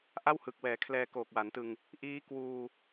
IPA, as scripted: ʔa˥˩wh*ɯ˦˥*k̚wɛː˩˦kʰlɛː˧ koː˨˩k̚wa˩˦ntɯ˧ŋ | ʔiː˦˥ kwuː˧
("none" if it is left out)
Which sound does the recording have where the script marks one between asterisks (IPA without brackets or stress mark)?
ɯ˨˩